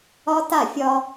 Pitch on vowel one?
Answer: high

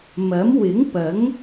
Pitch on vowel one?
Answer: rising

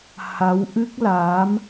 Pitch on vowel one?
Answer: rising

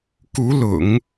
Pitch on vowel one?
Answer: rising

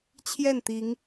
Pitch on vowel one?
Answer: falling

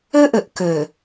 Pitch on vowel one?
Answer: high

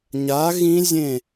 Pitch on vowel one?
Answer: rising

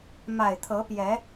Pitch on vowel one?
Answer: low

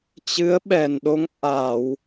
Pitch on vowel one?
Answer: rising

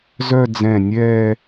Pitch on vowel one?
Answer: falling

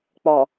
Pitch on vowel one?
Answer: low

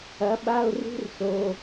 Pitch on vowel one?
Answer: rising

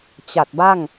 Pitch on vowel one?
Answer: low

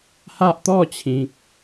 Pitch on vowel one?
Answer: high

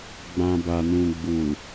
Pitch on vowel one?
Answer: low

